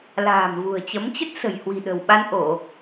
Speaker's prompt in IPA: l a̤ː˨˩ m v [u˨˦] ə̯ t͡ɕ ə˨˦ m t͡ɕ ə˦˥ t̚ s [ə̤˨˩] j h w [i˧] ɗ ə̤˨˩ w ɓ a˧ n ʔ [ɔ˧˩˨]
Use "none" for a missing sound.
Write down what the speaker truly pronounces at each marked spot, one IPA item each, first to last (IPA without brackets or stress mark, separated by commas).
ṳ˨˩, ə̤˨˩, i̤˨˩, o˧˩˨